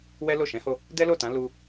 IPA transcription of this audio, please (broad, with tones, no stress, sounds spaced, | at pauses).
w ɛ˦ l o˦˨ ʃ ɛ̃˨˦ h o˧ | d ɛ˦ l o˦˨ t ã˨˦ l u˦